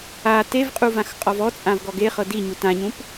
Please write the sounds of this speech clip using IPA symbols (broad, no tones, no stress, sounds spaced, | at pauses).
a t e v qʼ u v ã x qʼ ɔ v ɔ t͡sʼ ã v ɡ ɔ ɡ e χ ɤ d i ɲ u t ã ɲ ũ p